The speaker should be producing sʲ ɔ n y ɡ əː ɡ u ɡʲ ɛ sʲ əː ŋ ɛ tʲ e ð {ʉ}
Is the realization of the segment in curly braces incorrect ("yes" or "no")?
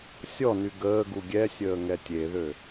yes